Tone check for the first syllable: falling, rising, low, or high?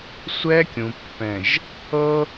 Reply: high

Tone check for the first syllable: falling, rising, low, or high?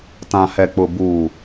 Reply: low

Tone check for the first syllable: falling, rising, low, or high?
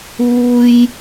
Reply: high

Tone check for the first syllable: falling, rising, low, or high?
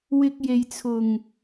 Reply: high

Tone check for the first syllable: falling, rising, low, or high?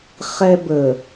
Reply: high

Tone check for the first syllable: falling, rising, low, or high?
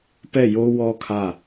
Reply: falling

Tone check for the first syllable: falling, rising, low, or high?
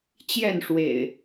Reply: falling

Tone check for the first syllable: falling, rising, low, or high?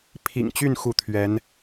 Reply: low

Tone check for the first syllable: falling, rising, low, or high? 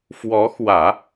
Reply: rising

